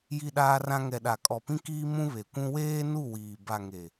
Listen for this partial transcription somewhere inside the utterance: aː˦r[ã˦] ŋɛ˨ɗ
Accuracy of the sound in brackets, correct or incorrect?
correct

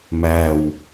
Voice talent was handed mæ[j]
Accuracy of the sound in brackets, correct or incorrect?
incorrect: w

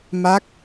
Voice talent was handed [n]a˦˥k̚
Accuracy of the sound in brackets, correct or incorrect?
incorrect: m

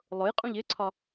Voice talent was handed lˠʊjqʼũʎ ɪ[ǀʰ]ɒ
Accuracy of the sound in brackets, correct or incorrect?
correct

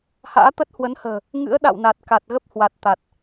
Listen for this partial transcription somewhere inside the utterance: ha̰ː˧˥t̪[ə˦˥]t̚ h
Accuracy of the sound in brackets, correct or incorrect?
correct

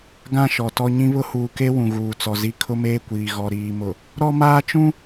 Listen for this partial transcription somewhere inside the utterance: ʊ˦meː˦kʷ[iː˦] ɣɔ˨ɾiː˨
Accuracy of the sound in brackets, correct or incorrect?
incorrect: iː˨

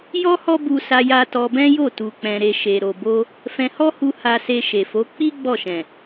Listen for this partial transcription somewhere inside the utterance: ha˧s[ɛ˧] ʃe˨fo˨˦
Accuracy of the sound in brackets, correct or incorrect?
incorrect: e˧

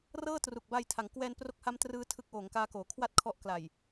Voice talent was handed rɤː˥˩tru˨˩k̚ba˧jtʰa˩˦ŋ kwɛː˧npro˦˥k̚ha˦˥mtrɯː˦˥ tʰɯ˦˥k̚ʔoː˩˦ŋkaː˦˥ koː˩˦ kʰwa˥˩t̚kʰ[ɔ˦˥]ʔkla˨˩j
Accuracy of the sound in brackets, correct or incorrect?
correct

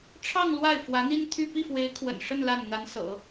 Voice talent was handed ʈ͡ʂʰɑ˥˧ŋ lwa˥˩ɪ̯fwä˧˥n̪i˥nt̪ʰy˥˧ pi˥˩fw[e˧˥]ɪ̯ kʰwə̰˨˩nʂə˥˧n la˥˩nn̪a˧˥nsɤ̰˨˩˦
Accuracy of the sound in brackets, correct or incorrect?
correct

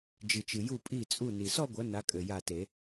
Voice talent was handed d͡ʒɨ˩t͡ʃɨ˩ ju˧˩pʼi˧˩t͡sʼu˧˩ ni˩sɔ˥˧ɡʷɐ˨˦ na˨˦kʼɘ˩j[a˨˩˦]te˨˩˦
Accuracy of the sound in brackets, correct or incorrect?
incorrect: a˧˩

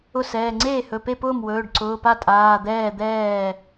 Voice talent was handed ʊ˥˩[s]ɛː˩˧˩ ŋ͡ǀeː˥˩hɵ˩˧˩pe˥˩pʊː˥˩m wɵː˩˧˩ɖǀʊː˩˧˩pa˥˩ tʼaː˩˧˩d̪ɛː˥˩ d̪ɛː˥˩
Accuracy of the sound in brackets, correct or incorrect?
correct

